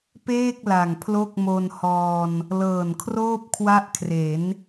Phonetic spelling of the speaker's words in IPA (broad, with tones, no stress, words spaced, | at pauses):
peː˥˩k̚ la˨˩ŋpʰlo˥˩k̚mo˧nhɔː˧n | lɤː˨˩nkʰroː˥˩p̚kʰwa˦˥ʔ kʰre˩˦n